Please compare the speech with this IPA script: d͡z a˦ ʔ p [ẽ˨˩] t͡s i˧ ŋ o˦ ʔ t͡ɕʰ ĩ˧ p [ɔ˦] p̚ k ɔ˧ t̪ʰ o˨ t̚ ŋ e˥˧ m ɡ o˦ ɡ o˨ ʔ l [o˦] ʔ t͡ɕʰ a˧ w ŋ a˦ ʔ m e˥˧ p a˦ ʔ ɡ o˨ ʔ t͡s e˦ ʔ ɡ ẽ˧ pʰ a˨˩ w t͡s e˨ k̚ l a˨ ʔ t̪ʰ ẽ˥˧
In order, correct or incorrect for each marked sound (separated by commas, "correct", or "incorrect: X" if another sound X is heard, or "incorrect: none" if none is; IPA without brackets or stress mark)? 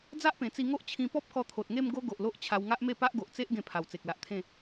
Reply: correct, correct, correct